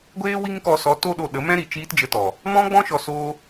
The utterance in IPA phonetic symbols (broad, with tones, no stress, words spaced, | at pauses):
ɡʷeː˦ wi˦ŋkɔ˧sɔ˨˦ to˦ɗo˧ɗə˨˦mɛ̃˦ ɾi˨t͡ʃiː˦td͡ʒə˧tɔ˨ | mɔ̃˦ɡ͡bɔ̃˦ʃɔ˧ so˦